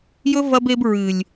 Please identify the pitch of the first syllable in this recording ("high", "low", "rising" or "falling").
high